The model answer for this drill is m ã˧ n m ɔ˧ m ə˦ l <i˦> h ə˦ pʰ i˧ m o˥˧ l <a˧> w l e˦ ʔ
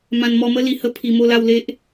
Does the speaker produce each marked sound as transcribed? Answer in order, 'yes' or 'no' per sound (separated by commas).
no, no